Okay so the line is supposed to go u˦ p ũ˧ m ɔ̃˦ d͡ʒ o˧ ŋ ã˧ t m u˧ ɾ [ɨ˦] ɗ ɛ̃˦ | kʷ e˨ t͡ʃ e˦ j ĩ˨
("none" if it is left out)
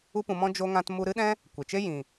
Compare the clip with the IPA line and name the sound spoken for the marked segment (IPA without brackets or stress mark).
ɨ˦